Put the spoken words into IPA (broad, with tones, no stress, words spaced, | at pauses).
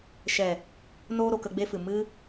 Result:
ʃɛ˨ | noː˧ɾo˨ kə˧ɡ͡be˦fɨ˨ mɨ˧